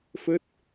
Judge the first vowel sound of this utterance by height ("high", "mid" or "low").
mid